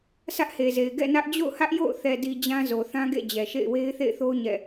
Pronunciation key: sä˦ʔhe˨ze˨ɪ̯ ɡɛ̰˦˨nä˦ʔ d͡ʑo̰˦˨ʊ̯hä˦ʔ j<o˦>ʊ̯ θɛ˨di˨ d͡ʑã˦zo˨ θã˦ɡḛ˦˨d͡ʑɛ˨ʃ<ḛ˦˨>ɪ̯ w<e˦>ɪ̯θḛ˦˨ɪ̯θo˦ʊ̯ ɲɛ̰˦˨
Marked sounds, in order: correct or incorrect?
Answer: incorrect, correct, correct

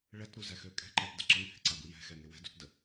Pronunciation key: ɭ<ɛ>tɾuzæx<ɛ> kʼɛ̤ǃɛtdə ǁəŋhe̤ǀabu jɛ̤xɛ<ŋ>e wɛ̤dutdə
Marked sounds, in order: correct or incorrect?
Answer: correct, incorrect, correct

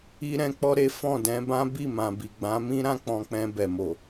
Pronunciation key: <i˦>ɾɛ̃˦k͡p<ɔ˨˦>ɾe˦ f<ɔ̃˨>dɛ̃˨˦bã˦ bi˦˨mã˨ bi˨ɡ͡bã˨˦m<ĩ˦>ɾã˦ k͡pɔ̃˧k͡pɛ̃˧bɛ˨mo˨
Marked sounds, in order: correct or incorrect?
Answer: correct, incorrect, incorrect, correct

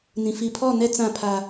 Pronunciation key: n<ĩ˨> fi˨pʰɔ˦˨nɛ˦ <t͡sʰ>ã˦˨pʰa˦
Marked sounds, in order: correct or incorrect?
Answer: correct, incorrect

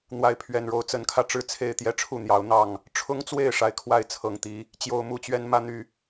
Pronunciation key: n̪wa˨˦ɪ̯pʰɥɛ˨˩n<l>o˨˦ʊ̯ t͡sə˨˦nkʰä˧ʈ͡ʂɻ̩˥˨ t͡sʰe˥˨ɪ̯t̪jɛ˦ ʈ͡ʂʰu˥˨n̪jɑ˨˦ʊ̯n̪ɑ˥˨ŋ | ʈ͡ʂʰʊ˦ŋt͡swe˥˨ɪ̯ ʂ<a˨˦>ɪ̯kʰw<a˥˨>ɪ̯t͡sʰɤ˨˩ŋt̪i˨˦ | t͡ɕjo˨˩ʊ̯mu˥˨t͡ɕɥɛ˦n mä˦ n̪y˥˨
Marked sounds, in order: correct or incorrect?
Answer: incorrect, correct, correct

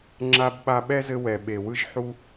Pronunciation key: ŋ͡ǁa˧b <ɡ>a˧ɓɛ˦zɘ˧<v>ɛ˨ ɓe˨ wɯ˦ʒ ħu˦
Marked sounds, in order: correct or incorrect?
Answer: incorrect, incorrect

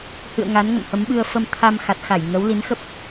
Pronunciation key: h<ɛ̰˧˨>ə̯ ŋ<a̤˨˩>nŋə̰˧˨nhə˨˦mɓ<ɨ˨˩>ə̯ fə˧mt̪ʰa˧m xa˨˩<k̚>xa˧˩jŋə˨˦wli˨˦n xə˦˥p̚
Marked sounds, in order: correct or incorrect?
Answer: incorrect, incorrect, incorrect, incorrect

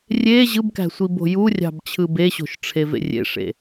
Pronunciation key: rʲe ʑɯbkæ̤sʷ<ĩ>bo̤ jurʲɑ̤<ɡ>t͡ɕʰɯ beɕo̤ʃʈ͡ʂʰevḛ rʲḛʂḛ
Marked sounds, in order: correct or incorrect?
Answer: incorrect, incorrect

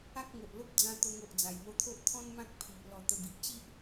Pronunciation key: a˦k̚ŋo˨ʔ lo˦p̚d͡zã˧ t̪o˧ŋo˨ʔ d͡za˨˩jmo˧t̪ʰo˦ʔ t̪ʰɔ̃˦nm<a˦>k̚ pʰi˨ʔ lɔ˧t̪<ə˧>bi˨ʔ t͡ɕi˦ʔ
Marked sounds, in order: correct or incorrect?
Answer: incorrect, correct

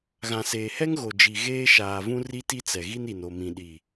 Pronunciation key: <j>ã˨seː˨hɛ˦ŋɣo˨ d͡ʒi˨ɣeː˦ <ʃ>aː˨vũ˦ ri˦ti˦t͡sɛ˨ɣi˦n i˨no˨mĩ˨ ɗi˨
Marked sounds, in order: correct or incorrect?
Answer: incorrect, correct

